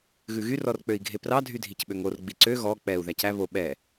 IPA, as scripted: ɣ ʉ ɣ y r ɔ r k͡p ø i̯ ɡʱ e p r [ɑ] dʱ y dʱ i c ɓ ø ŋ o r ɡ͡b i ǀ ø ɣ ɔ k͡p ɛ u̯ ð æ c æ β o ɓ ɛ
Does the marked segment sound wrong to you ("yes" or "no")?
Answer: no